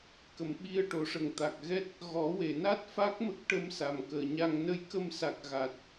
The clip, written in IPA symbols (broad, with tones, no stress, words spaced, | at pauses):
kə˨˩˨mɓi˧ə̯ʈo˨˩˦ʂə˨˩ŋ t̪a˨˩k̚ɣɛ˦˥t̚ | ɣɔ˨˩˦we˨˩˨na˦˥t̚ fa˦˥k̚mə˦˥k̚ʈə˧msa˨˩m kəː˨˩˨ɲa˧ŋ nə˧jkə˧msa˨˩k̚ ɣa˨˩t̚